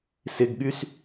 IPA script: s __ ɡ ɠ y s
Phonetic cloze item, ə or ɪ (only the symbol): ɪ